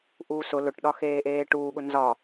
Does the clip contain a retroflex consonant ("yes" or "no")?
yes